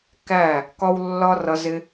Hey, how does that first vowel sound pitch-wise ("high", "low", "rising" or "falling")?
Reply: falling